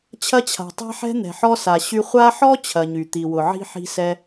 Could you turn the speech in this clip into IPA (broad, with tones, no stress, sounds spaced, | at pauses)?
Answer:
t͡ɕʰ ɐ˦ t͡ɕʰ a̤˩ tˤ a̤˥ ħ ɛ̤˥ n̪ ɛ̤˩ ħ ɔ˦ s a˩ ɕ y˦ χʷ a˦ ħ ɔ˥ t͡ɕʰ ɐ˨ ɲ y˩ t̪ i˩ w ʊ˩ ʕ i̤˥ ħ i̤˦ s ɛ˦